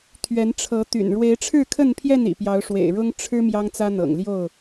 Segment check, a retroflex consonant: present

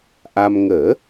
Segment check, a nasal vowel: absent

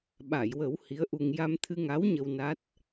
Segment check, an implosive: present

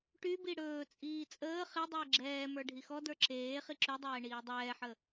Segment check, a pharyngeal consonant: present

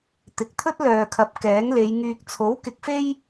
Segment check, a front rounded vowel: present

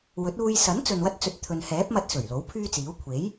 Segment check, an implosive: absent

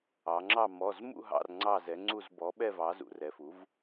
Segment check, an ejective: absent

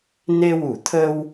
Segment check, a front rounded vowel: absent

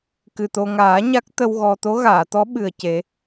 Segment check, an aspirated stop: absent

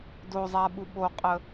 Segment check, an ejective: present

